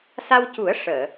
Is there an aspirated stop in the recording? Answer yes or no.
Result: no